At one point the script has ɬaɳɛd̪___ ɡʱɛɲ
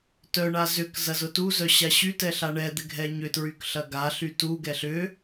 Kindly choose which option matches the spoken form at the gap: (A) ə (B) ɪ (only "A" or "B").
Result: B